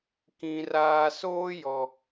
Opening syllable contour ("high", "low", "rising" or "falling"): low